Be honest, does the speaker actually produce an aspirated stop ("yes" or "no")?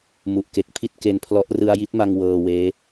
yes